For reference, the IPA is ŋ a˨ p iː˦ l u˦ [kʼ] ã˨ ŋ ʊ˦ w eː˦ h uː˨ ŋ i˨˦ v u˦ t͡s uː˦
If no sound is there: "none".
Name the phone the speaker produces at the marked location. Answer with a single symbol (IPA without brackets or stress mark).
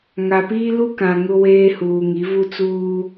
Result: k